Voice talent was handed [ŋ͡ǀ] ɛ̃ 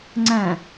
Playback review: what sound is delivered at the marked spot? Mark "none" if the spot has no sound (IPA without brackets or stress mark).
ŋ͡ǀ